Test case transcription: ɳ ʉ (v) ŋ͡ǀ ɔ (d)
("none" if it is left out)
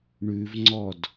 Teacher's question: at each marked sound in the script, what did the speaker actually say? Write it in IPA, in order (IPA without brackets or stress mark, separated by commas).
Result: v, d